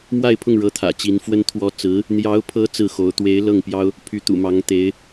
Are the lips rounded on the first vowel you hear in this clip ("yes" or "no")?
no